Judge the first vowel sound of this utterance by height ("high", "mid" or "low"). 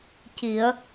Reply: high